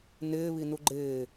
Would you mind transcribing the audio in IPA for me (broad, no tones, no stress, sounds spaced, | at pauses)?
n ɪː β i n u ɡ͡ǃ ɪː